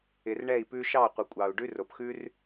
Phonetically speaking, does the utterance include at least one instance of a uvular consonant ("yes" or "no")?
yes